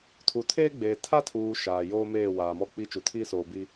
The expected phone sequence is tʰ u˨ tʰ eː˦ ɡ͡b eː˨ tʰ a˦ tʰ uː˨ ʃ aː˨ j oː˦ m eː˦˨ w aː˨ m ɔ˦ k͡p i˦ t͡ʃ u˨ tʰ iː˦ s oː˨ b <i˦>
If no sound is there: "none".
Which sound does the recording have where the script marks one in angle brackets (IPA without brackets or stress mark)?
i˦